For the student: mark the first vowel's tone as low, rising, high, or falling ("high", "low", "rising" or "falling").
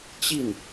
falling